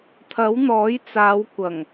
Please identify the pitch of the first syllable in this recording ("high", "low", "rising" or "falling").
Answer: rising